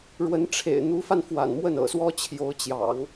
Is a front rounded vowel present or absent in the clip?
absent